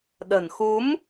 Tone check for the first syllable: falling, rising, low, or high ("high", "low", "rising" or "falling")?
low